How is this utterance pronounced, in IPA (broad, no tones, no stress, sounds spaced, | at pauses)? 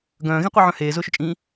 ɡ œ̃ː ɣ ĩ qʷ i ʕ œ̃ h eː z ʊː ʃ ʊ t͡ʃʼ ĩː